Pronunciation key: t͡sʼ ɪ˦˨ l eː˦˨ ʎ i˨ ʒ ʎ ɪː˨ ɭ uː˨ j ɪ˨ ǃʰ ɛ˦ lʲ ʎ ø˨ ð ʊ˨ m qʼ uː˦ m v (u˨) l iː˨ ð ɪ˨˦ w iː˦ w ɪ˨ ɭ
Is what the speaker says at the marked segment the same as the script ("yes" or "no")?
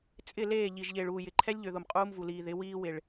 yes